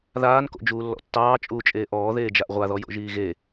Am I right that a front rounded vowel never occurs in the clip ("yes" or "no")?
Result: yes